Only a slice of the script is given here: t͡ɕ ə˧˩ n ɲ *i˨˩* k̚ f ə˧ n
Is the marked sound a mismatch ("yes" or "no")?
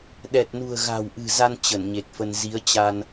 yes